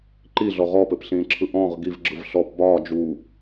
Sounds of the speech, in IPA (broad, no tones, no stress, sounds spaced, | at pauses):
ǃ i ɮ ɔ ʁ ɔ p ɘ p ɬ ĩː ǁʰ ɯ ʔ ɔ̃ ʁ ɡ i v ɡ͡ǁ ɯ v ɬ ɔ p b ɒː d͡ʒ u